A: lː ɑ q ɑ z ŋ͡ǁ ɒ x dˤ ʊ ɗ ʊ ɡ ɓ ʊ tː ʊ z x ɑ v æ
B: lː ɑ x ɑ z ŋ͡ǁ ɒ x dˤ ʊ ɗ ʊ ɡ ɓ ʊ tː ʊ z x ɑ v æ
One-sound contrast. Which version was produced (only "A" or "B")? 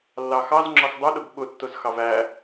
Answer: B